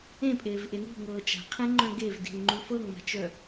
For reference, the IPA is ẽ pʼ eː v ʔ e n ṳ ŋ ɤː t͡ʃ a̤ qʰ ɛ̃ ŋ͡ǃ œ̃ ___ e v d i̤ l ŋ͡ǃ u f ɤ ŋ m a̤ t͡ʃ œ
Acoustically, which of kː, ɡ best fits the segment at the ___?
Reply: ɡ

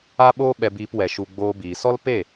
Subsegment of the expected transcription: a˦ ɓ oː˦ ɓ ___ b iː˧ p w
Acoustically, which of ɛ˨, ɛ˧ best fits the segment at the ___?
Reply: ɛ˧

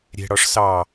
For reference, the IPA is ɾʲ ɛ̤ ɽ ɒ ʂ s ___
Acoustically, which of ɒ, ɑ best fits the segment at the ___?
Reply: ɑ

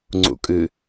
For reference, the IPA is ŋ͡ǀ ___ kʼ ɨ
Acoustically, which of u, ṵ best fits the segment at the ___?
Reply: ṵ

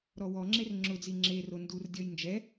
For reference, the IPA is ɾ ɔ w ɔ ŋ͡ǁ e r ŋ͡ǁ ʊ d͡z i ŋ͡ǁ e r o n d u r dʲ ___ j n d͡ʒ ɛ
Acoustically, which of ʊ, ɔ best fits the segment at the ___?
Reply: ɔ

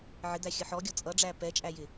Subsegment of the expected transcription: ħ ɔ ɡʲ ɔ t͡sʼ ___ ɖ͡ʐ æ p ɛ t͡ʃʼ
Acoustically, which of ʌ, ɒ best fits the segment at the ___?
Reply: ʌ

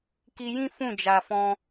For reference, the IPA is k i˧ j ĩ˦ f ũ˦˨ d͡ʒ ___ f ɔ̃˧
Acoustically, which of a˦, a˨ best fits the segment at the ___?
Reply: a˨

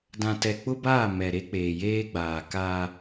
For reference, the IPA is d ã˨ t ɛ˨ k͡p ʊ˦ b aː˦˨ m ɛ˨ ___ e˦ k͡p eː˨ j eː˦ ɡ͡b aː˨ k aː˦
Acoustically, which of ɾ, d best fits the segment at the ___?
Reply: ɾ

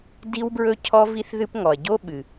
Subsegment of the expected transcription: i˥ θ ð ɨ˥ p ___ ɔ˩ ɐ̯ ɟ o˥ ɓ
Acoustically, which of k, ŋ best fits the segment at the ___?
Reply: ŋ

